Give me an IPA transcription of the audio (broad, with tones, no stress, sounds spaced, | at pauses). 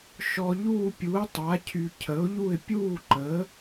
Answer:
ʃ ɔ˧ ʎ uː˥˧ pʲ u˨˥ ə̯ tˤ a˨˥ cʰ y˧ cʰ ə˨˥ ʊ̯ ʎ u˥˧ ɪ̯ pʲ uː˥˧ ǃ ə˨˥